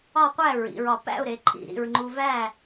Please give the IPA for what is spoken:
ɒ˥˨qʷæ˥˨ɹḭ˩˧ɹɒ˧˩ pæ̰˥˨ʊ̯ɾe˩˧ǃʰḭ˧˩ ɾḭ˧˩ɹŋ͡ǃu˧væ˥˨

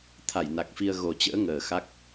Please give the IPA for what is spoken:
t̪ʰa˧˩jna˨˩k̚fi˧ə̯ ɣo˨˩t͡ɕə̰ː˧˥ ŋəː˨˩xa˦˥k̚

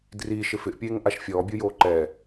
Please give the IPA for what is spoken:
driʃɪ fɪʔpʲeːŋʔaʃ fʲɔːbʲujoː ǃɛ

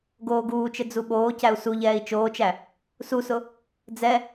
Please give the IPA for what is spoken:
ɡoːɡuːt͡ʃɘ d͡zuɓoːcæu̯ suʎɛːi̯ t͡ʃoːt͡ʃæ | susʊ | d͡zɛ

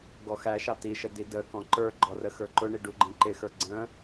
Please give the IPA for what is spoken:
ɡɔxæʃɑ tiʃə didəkɔ̃ ǃə˞ɡ͡ǃɔ rəxə˞ǃʊɳi ɖuɡ͡ǃĩǃɪxə˞ ɡ͡ǀə̃

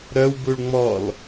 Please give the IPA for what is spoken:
ɾœwbuɭ ŋ͡mɔl

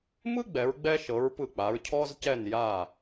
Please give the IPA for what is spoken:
mɯ˥ɡ͡bɛ˩˧ɹɡ͡bɛ˧ʃɤ˩˧ɹ pɯ˧˩k͡pa˩˧ɹ cʰɔ˧zcɛ˧˩n ja˧˩

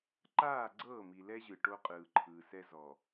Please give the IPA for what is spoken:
ǃaː˦˨ ɡ͡ǀɤː˦˨mi˨lɛ˦ʑɯ˨ ʈo˦qʼɯː˨ǃʰɯː˨sɛ˦ zɔ˨

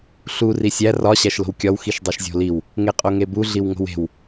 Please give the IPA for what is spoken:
ɬu risʲæ rɒ ɕæʃlo̤wkʲɒw xiʃdˤuʃzʲo̤liw | ŋeqʼoŋebu ɮiwŋo̤we̤w

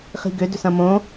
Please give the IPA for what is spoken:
χi̤ɡʏ dʏsɐ̃mõ

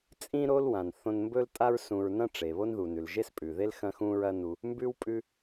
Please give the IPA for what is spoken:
t͡sʼĩ˥ ɾo˥lwã˩n θõ˧nmbɵ˥ltʼa˥ɹ sũ˧ɹ nɐ̃˥ʈ͡ʂe˩βo˥nðu˩ nʉ˩lʒe˥spʼʉ˩ðe˥l xɐ̃˥xũ˥ɹɐ˥nu˧ | mbʉ˥w pʼʉ˧

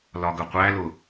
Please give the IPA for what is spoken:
lɒɡəqʷæ lʊ

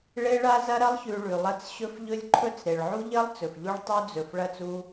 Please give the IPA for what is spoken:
ɭe˦ ɭa˦zɐ˦ɾɐ˦lˠ çʉ˨ ɭʉ˨lˠɐ˦t͡s ɕɵ˦fʎɵ˦lʲ ǃʰɵ˦t͡sɾe˨ɭ ʕu˦ʎɐ˦lˠ t͡sɵ˨fʎu˦ɭ tˤu˦d͡zɵ˨f ɭɐ˦˨t͡su˦

